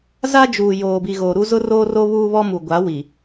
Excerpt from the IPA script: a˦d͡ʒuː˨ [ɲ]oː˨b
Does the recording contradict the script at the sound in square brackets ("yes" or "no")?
yes